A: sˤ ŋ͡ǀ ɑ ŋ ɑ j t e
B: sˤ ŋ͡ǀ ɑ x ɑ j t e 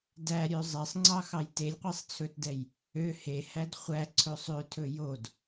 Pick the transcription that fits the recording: B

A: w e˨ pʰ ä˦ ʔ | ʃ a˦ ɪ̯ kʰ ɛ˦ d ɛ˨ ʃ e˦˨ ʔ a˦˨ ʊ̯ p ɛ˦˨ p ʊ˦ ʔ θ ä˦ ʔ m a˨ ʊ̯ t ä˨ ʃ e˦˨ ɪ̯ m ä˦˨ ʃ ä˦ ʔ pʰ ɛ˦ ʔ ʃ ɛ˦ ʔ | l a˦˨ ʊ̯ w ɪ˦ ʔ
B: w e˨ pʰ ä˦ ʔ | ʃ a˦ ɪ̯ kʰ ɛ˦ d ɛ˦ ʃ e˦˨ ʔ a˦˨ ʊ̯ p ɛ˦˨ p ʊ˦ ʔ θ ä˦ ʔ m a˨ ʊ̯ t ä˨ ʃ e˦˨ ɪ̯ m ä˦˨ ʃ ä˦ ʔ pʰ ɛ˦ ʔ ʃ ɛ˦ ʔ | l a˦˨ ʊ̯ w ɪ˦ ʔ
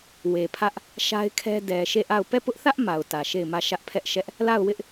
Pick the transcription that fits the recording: A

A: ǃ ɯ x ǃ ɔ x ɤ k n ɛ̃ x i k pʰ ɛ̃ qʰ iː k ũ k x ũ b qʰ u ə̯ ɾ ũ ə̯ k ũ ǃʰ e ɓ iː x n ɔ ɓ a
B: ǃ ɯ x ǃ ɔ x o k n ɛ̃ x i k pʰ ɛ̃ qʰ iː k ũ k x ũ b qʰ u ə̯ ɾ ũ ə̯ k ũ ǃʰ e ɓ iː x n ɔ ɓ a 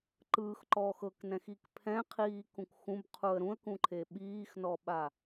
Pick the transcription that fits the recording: A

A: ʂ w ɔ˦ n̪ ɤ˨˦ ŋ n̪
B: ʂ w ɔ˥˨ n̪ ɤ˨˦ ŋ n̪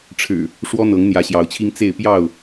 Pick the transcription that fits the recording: A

